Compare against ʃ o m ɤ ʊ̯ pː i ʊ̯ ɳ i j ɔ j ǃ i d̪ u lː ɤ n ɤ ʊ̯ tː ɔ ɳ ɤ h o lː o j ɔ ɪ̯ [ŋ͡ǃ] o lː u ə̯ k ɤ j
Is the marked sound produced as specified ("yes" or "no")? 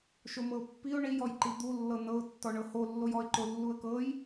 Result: no